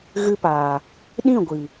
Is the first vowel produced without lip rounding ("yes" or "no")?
yes